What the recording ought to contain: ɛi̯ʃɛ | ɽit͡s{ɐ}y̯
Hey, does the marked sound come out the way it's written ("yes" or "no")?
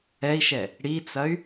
yes